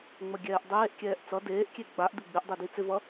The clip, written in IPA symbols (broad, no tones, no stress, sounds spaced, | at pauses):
ŋ͡m ə ɡʲ ɛː ʔ dˤ eː ʔ kʲ ɛː ʔ t͡s ʌ d eː ʔ kʲ e ɡ͡b a ʔ d ɪ ɡ͡b ɪ ʔ dˤ e d i t͡s ɪ v ʌ